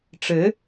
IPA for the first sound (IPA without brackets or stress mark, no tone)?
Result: ʈ͡ʂ